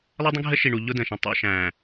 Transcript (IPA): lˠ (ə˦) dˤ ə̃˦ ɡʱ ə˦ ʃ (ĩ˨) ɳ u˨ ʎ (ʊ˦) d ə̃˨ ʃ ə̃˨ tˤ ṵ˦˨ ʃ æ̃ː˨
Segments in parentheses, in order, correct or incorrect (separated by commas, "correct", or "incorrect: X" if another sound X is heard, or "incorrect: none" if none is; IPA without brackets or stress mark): correct, incorrect: i˨, correct